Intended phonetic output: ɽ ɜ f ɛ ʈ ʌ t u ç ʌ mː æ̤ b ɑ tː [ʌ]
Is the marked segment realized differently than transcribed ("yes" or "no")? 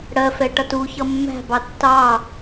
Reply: yes